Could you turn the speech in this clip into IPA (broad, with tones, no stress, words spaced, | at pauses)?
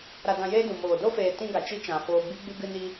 ɾa˧dã˧jeː˦ dũ˨moː˨ do˦feː˨ tĩ˦ɡa˨t͡ʃi˦t͡ʃã˨ foː˧ɡ͡bi˦ɡ͡bɨ˦ ɡɨ˧ni˧